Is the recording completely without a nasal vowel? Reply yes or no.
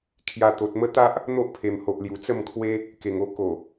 yes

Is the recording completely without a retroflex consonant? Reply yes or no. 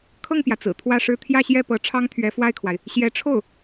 no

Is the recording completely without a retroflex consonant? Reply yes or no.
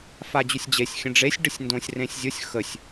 no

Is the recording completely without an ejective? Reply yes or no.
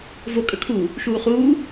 no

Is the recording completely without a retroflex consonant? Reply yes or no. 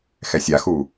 yes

